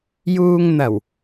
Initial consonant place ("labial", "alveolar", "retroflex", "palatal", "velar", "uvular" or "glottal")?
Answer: palatal